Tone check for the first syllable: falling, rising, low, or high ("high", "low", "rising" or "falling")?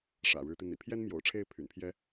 low